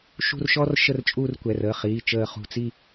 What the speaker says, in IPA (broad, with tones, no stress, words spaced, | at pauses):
ʃṳ˥˧rʃɔ˥r ʃə˥˧rt͡ʃʼuː˥˧rkʷɛ˩˧˩r əː˩˧˩χiː˩˧˩t͡ʃəː˧˩ χṳ˧˩t͡si˥˧